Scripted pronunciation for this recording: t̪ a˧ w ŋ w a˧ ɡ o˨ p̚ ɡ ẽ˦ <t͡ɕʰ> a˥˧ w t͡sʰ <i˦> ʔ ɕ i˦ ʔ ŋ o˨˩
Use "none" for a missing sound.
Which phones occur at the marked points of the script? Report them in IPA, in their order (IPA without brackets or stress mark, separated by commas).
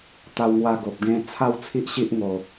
t͡sʰ, i˦